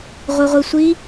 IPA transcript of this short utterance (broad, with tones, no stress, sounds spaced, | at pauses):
ʁʷ i˧ ʁʷ i˧ sʷ i˦